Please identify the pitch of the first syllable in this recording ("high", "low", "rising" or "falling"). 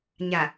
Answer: low